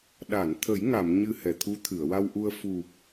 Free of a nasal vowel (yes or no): yes